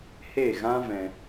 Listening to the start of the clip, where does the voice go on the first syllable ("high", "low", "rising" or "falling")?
falling